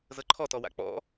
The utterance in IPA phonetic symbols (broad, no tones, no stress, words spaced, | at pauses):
zɤǃʰɔtɔwa̰ k͡pɔ̰